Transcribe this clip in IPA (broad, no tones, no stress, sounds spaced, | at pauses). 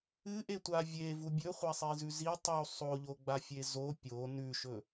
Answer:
ɨ ʔ e tʷ a vʲ e v u bʲ ɵ χʷ a sˤ i z ʉ z i tˤ u sˤ o ʎ o ɡ͡b a fʲ e z o pʲ o n ʉ ʃ ɵ